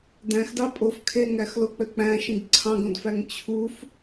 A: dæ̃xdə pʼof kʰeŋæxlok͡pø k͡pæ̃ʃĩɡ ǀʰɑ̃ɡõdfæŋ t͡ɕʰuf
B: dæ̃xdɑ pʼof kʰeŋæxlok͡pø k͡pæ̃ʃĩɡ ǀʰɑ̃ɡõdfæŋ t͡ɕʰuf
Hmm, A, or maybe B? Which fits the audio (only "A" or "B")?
B